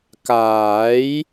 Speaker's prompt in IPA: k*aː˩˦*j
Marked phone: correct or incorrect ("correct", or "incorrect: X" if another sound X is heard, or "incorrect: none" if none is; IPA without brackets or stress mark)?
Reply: correct